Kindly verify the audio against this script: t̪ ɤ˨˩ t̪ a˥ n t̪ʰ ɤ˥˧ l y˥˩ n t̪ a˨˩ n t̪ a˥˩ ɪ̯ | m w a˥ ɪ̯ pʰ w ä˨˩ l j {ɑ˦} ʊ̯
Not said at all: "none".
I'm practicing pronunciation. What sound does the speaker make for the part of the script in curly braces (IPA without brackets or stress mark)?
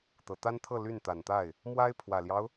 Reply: ɑ˦